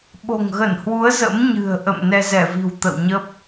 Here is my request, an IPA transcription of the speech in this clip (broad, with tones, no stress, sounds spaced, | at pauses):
ɓ o̤˨˩ ŋ ɣ ə˧˩ n h w u˨˦ ə̯ z ə̰˧˥ m ɲ ɨ̤˨˩ ə̯ ʔ ə̰˧˨ m n ɛ˧ z ɛ˧˩ v i̤˨˩ w t̪ ə̰˧˨ w ɲ ə˦˥ p̚